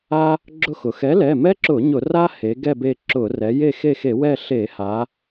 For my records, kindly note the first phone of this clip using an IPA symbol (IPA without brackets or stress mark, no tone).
a